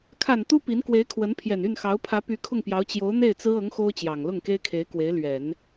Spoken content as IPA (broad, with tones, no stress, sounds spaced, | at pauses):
kʰ a˨˩ n t̪ u˥ p i˧˥ n k w e˧˥ ɪ̯ kʰ w ə˧˥ n pʰ j ɛ˨˩ n y˥˩ n x ɑ˧˥ ʊ̯ pʰ ä˧˥ p y˧˥ kʰ ʊ˥˩ ŋ p j ɑ˧˥ ʊ̯ t͡ɕ j o˧˥ ʊ̯ n̪ e˥˩ ɪ̯ t͡s ɹ̩˥ ɤ˧˥ ŋ x o˥ ʊ̯ t͡ɕ j ɑ˨˩ ŋ l ʊ˥˩ ŋ k e˥ ɪ̯ kʰ e˧˥ ɪ̯ k w e˧˥ ɪ̯ l ɥ ɛ˨˩˦ n